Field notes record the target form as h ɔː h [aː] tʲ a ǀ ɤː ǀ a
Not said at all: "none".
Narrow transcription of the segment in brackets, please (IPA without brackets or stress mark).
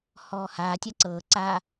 aː